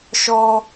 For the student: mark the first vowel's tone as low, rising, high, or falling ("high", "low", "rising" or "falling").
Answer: high